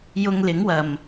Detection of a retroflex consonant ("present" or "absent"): absent